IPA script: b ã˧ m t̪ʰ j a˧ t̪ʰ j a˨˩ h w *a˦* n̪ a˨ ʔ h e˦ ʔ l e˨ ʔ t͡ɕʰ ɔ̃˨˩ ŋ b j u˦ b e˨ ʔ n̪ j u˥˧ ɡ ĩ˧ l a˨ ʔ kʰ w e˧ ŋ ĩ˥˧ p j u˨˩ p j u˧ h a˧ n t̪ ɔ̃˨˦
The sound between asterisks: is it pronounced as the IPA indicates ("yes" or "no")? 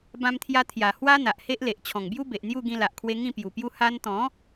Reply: yes